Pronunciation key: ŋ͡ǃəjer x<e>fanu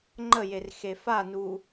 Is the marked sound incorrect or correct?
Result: correct